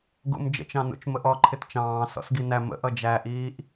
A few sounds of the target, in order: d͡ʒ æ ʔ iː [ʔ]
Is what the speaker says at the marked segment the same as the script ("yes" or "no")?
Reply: yes